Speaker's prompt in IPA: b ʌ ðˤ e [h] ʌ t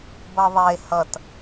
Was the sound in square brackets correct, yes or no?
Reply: yes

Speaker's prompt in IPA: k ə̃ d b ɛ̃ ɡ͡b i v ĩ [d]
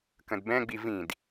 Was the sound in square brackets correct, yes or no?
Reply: yes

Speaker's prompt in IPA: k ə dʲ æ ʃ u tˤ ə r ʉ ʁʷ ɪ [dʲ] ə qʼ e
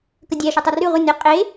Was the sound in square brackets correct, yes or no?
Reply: no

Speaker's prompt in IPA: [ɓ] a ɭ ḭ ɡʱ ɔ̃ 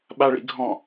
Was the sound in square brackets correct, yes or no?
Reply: yes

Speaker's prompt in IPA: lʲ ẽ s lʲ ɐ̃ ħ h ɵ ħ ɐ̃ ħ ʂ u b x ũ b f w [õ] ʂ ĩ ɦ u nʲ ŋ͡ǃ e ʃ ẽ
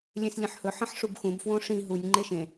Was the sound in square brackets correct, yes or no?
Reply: yes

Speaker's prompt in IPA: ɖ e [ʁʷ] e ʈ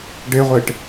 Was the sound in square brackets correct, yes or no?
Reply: yes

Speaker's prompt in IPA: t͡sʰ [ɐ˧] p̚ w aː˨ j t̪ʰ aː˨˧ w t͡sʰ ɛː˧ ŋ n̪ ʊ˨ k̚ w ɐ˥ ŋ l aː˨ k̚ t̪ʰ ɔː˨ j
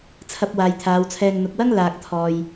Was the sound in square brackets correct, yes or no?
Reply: yes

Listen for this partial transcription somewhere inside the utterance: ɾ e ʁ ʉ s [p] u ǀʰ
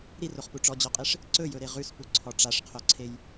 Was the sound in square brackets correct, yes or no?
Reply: yes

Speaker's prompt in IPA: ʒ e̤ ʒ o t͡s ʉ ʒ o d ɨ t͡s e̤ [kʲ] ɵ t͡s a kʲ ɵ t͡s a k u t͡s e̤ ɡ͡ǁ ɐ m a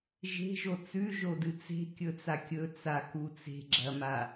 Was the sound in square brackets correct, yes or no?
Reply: yes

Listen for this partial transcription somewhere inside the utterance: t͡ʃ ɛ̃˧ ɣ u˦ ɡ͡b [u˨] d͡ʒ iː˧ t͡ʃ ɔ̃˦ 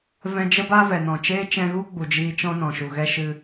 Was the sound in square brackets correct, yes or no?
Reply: yes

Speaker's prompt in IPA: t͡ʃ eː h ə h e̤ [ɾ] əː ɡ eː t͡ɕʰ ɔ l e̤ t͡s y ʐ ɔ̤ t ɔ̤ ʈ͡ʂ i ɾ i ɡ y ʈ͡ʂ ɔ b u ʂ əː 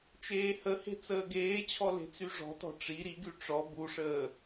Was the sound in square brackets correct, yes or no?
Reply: no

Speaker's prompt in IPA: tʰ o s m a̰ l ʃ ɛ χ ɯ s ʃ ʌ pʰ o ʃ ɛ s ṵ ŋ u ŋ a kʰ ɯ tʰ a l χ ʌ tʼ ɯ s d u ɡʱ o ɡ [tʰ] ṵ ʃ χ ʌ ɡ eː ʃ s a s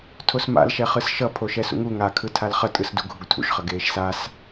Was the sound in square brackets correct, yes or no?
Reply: yes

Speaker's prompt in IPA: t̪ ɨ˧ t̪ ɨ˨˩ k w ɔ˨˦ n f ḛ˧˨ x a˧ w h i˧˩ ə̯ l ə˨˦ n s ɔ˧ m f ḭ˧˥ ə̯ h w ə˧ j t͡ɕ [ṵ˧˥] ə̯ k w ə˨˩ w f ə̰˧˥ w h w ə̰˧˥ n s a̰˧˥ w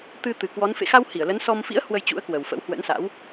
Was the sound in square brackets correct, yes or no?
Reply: yes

